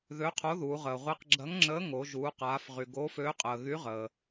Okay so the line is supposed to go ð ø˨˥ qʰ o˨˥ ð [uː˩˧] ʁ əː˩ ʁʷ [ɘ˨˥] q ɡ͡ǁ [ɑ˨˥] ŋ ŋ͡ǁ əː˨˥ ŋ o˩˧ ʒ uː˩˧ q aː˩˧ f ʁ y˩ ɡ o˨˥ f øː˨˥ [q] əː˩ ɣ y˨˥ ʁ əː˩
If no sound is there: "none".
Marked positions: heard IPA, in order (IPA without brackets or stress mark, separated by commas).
uː˩˧, e˨˥, ɐ˨˥, qʼ